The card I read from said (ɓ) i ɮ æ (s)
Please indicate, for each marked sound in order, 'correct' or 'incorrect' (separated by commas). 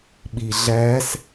correct, correct